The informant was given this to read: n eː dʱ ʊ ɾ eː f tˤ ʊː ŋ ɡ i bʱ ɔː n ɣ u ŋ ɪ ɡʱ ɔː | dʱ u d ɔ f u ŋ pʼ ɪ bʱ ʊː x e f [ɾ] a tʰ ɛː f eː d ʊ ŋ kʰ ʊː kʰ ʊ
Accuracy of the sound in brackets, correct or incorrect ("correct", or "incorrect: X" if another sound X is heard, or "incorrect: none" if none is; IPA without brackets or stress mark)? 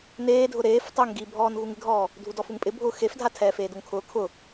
incorrect: dʱ